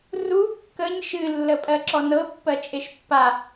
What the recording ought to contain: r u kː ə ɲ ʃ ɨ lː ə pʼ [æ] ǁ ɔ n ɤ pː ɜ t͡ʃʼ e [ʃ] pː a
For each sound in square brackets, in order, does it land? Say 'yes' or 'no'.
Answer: no, yes

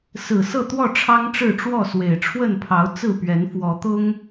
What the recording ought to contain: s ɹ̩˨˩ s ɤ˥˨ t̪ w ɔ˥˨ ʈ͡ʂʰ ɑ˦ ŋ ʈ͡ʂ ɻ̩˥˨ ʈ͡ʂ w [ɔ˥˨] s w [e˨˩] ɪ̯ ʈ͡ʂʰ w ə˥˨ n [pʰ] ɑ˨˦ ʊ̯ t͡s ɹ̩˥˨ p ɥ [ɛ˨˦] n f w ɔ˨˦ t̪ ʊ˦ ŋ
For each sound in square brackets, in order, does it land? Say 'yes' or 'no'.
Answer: yes, yes, yes, yes

